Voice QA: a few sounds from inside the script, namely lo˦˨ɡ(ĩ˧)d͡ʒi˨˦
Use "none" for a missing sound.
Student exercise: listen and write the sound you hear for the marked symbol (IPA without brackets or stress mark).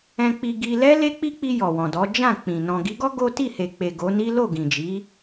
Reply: ĩ˨